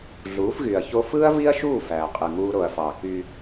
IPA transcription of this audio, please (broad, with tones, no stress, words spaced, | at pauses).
ɮuː˨˦fɣy˨ɐ̯ço˦ fɯː˦ɐ̯vi˦ɐ̯ʃuː˦˨ fæː˨qʼɯ˨ŋuː˦ ɾo˨ɐ̯fɑ˨ ky˦